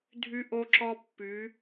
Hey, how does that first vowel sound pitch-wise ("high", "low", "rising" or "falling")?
high